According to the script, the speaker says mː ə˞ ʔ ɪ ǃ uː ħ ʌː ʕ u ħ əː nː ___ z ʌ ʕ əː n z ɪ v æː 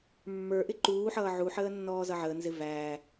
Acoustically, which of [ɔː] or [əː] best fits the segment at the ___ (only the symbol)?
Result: ɔː